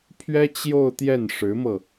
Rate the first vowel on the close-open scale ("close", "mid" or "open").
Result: mid